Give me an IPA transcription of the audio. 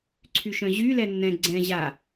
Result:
ǀʰyʃœ̃ʑy lɛnːɛ̃ ɡ͡ǀɛ̃ ʑa

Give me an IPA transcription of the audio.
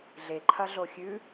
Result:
ɮe ǃʰɐɮoxʲʉ

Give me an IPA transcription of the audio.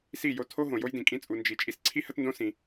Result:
si˦˨jo˧tʰo˦ ɦõ˨jo˦jdĩ˨kʼĩ˦ t͡sʼu˧ nd͡ʒi˧ t͡ʃʼi˧sǀʰi˦hə˦tndõ˦ sĩ˧

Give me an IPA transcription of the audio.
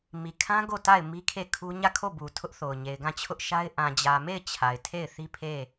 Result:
mi˨kʰã˦ ɡo˦˨ta˦˨ɪ̯ mi˦kʰe˦˨kʰu˦ ɲä˦˨kʰo˦˨bu˨ tʰʊ˦ʔθo˨ʊ̯ɲe˨ɪ̯ɡã˦˨ t͡ɕʰʊ˦ʔʃa˦ɪ̯ ʔã˨d͡ʑä˨me˦˨ɪ̯ t͡ɕʰa˨ɪ̯tʰe˦˨ɪ̯ θi˦pʰe˦˨

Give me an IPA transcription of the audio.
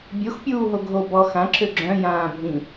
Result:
bʲoxpʲuːɦo ɡʱo bɔ xãǁø ɡ͡ǁœ̃jãː bʱĩ

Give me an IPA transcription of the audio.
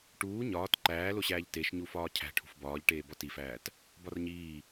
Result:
ʈuː ɲɒːt ǃæːloɕæːʎ teʃɲu fɒːcʰæ̤ ʈʰṳfbɒːʎʈeː bɒtifæːt | bɒrɲiː

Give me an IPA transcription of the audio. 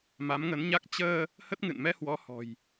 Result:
ma˨˦mŋə˨˦nɲa˦˥k̚ t͡ɕəː˧ | hə˦˥t̚ŋɨ̰˧˨n mɛ˧hwɔ˨˦hɔ̤˨˩j

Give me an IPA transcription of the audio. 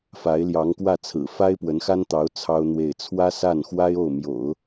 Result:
fa˧˥ɪ̯ljɑ˧˥ŋkwä˥˩t͡sʰɹ̩˨˩ fa˥ɪ̯pwə˧˥nxa˥nt̪ɑ˧˥ʊ̯ t͡sʰɑ˥ʊ̯n̪we˥˩ɪ̯ t͡sʰwä˥sa˥˩nxwa˥ɪ̯ o˥˩ʊ̯mjo̰˨˩˦ʊ̯

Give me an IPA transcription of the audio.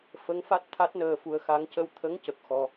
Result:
fə˧˥ŋfa˦˥t̚ t̪ʰa˦˥t̚nəː˧fu˧ə̯xa˧˥ŋ cə˧wt̪ʰə˧˥ŋ cə˨˩k̚xɔ˧

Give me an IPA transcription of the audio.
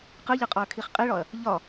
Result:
qɯʎɯqʼɒɐ̯kʰiχ qʼiɭɒɐ̯ | ʎɒ

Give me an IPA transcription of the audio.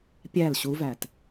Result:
pʲæl ɕuvæt

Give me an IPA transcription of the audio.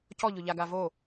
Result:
cɔʎʊʎaɡa vo

